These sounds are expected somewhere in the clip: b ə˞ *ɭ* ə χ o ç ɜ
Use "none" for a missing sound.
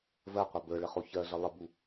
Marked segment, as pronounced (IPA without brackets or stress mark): ɭ